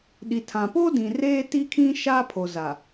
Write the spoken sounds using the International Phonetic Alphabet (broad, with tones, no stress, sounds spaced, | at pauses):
ɗ i˨ tʰ ã˨ p o˦ d ĩ˨ r eː˦ t i˦ kʰ ĩ˦ ʃ aː˦ pʰ o˨ z a˨